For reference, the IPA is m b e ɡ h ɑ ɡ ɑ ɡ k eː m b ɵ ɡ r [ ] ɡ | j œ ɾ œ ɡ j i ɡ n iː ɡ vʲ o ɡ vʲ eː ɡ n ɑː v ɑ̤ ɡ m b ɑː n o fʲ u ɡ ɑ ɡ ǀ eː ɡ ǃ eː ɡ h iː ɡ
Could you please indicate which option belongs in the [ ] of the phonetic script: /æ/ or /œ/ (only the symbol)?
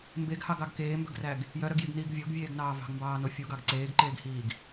æ